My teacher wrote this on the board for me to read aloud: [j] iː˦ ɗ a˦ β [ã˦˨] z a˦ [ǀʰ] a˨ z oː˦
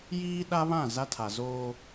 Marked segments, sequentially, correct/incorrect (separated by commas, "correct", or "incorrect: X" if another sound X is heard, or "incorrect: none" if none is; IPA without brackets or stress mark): correct, correct, incorrect: tʰ